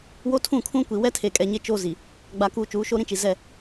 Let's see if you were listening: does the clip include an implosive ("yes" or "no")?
no